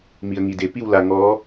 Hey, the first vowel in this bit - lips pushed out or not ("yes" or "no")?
no